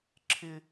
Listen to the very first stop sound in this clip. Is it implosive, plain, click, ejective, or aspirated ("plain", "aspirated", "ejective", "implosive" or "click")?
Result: click